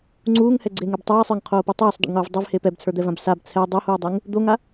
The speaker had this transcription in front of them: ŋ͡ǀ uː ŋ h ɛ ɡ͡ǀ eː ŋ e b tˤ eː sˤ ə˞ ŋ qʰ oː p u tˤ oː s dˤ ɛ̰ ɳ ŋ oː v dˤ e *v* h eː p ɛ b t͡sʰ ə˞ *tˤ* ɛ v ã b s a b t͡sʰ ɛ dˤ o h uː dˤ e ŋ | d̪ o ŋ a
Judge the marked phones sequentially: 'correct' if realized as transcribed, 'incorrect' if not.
correct, incorrect

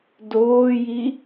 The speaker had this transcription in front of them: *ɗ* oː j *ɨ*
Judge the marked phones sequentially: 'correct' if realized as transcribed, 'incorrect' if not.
incorrect, incorrect

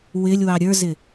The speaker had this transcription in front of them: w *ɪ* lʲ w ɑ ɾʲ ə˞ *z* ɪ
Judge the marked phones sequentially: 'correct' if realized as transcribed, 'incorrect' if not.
correct, correct

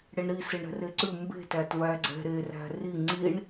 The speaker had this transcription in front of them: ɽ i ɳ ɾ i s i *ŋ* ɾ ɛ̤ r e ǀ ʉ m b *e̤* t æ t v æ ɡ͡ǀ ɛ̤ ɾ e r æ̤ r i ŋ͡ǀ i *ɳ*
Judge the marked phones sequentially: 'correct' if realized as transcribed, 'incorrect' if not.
incorrect, correct, correct

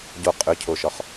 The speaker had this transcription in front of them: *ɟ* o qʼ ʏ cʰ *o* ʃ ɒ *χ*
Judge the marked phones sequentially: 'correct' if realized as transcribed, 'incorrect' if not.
correct, correct, correct

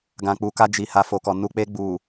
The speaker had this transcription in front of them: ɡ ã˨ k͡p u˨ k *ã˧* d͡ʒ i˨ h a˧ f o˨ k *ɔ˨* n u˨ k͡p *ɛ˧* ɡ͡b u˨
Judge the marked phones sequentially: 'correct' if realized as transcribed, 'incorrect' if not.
incorrect, correct, incorrect

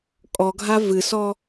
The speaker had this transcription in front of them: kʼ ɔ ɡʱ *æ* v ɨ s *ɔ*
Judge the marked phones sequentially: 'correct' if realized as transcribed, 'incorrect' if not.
incorrect, correct

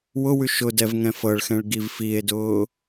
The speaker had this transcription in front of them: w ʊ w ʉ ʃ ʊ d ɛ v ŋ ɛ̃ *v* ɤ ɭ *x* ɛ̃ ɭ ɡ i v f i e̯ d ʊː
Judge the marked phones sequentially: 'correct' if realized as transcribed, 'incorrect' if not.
incorrect, correct

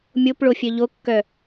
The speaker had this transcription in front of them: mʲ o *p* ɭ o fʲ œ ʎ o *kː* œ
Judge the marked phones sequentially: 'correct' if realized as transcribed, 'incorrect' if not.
correct, correct

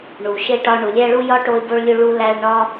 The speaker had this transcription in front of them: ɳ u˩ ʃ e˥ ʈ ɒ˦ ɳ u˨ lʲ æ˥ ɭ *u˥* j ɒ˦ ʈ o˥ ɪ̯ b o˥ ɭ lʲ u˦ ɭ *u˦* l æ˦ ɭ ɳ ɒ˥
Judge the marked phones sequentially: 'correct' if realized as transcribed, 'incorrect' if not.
correct, incorrect

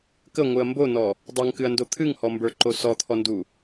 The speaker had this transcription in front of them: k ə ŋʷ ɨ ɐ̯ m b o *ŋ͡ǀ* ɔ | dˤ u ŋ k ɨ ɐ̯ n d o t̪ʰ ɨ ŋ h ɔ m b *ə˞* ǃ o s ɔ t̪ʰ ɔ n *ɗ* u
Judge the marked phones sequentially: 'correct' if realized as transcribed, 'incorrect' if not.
incorrect, correct, incorrect

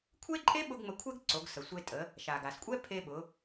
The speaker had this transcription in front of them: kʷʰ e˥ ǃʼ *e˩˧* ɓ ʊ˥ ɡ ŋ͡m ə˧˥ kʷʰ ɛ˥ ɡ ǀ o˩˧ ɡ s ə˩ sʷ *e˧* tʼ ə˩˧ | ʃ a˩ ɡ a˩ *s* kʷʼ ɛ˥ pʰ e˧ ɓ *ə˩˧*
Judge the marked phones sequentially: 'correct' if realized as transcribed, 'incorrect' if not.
incorrect, correct, correct, incorrect

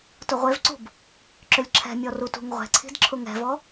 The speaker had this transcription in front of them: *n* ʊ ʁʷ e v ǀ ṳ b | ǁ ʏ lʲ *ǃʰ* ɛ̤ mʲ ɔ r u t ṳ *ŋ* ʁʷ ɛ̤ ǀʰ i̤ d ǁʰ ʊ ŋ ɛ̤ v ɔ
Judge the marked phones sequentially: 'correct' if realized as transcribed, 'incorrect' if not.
incorrect, incorrect, correct

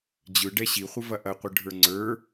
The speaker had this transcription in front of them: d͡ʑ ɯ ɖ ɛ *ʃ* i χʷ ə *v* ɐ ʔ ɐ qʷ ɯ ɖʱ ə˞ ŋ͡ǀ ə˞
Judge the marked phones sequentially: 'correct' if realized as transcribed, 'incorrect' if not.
incorrect, correct

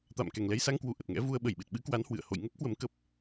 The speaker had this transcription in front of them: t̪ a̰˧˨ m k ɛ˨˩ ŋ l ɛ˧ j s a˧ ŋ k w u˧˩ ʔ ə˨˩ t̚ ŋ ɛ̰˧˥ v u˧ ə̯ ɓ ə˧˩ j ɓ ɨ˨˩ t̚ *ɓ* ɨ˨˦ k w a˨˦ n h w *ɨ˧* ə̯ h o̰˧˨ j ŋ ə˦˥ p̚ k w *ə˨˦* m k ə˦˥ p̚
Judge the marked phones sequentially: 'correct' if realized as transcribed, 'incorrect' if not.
correct, incorrect, correct

